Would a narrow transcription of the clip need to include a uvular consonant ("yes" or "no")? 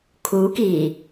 no